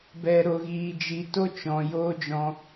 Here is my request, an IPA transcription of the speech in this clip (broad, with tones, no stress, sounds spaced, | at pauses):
b ɛ˨ ɾ o˨ ɣ iː˨ d͡ʒ i˨ t o˦ t͡ʃ ɔ̃˨ j oː˦ d͡ʒ ɔ̃˧